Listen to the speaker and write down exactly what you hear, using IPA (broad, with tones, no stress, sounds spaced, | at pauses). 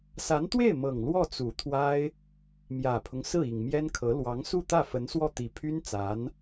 s a˧˥ n t̪ w e˥˩ ɪ̯ m ɤ˨˩ ŋ l w ɔ˥˩ t͡s u˨˩ t̪ʰ w a˥ ɪ̯ | m j ä˨˩ pʰ ʊ˦ ŋ s ɹ̩˥˩ i˨˩ ŋ m j ɛ˥ n kʰ ɤ˧˥ l w ɑ˧˥ ŋ s u˥˧ t̪ ä˥˩ f ə˧˥ n s w ɔ˥˩ t̪ i˨˩ pʰ y˥ n t͡s a˧˥ n